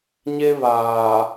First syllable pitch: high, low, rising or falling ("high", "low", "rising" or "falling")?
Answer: high